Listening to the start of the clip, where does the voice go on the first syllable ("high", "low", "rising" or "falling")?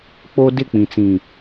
high